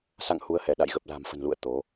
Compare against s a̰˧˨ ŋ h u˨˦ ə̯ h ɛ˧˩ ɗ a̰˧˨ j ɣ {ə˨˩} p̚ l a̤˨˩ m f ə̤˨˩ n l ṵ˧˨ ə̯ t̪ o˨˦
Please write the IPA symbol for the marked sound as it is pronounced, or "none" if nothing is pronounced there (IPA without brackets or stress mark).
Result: ə˨˩